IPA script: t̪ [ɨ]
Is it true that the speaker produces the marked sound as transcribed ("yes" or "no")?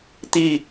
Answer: no